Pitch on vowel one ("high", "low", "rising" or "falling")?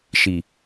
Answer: low